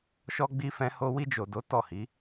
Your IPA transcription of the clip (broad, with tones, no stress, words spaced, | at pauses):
ʃɔ˧ ɡ͡bi˧fɛ̃˧ho˧ wi˧d͡ʒo˨do˨˦ tɔ˦˨hi˨˦